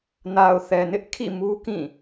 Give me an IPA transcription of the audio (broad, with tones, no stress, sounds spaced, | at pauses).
n a˨ ʊ̯ θ ɛ˨ n ɪ˦ ʔ kʰ ḭ˦˨ m u˦ k ĩ˦˨